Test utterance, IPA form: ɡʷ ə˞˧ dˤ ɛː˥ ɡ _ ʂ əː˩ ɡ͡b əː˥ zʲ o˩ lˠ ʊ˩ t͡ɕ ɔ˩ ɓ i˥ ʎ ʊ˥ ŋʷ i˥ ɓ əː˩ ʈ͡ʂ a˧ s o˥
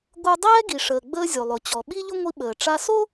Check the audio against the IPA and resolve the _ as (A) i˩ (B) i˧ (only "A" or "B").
A